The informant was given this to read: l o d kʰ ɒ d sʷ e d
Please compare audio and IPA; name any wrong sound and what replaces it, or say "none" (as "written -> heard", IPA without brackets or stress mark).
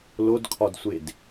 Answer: none